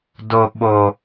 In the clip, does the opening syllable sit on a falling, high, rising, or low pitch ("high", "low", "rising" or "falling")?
high